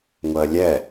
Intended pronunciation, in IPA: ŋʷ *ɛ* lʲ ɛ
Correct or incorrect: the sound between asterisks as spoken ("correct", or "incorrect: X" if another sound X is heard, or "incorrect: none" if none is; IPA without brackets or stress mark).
incorrect: ɜ